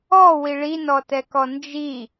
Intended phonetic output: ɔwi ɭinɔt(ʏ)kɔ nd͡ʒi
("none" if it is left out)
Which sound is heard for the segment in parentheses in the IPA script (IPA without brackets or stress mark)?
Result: ɛ